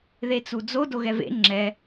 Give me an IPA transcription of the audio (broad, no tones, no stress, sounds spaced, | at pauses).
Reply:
ð e t͡s u d͡z o d o ɣ ɛ v ḛ ŋ͡ǁ ɛ